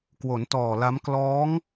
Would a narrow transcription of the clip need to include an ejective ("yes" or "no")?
no